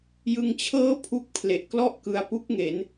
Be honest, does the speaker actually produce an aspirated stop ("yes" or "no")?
yes